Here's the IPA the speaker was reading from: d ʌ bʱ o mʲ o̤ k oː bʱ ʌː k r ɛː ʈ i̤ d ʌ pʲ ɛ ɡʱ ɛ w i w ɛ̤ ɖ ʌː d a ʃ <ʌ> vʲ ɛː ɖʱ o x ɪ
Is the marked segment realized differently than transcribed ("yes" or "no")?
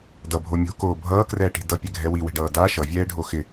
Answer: no